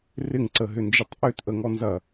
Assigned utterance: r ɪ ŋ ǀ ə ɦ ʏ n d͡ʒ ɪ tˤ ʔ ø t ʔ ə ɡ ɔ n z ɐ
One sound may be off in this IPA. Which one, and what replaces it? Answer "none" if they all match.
ɡ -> ŋ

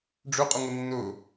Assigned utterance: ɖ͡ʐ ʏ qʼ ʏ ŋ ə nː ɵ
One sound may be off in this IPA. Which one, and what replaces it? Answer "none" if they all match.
none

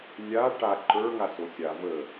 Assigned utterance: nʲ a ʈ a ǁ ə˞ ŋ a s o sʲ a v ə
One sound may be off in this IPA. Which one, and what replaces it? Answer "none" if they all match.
ǁ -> ǃ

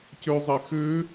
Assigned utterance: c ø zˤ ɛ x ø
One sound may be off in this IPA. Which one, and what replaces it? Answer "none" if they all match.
ɛ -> e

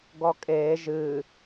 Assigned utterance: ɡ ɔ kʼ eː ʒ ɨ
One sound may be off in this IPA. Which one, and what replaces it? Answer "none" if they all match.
none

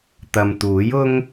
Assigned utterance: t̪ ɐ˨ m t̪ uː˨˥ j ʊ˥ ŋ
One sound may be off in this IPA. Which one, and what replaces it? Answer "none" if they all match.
none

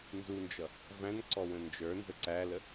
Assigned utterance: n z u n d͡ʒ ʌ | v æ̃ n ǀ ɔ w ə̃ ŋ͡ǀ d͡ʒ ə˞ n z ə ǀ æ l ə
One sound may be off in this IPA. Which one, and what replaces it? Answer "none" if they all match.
ŋ͡ǀ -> n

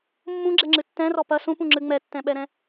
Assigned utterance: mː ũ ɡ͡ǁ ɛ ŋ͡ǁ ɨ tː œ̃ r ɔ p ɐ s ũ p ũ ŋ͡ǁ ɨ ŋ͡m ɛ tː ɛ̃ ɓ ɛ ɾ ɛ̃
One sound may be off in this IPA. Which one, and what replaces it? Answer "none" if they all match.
œ̃ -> ɛ̃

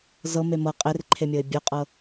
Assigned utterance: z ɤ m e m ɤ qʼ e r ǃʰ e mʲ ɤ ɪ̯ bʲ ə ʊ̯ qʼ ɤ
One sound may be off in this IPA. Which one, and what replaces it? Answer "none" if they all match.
none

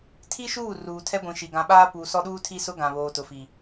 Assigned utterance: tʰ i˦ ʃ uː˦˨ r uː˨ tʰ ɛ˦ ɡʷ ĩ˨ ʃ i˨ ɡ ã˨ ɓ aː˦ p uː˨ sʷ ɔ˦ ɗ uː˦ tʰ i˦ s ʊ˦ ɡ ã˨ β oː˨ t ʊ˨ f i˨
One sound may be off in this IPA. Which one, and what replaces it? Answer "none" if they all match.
sʷ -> s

